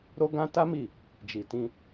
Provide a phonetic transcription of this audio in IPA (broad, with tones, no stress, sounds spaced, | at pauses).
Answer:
ɾ o˦ ɡ ã˦ t a˦ m i˦˨ | d͡ʒ i˨ t ĩ˧